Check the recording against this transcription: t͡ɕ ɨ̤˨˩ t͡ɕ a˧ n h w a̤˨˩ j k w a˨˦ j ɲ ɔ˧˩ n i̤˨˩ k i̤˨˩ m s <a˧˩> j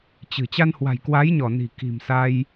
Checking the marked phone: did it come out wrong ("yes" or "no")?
yes